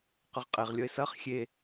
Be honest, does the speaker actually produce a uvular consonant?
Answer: yes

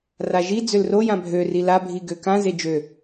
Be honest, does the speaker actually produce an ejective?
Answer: no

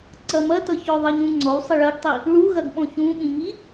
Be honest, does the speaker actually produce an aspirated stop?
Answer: no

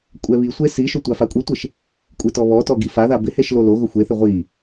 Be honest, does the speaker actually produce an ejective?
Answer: yes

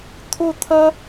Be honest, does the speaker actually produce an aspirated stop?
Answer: yes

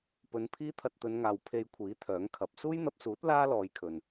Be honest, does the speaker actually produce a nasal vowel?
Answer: no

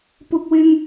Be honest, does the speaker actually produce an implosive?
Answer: no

